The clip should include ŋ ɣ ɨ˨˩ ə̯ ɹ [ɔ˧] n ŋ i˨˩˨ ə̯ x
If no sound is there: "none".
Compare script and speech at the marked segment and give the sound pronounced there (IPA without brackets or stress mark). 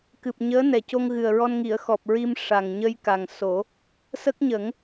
ɔ˧